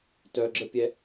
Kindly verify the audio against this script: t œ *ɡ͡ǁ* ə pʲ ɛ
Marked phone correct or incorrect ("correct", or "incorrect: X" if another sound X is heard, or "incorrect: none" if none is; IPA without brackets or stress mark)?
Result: correct